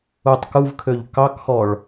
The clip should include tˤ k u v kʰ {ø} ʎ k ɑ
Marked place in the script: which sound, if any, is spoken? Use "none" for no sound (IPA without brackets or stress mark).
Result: ø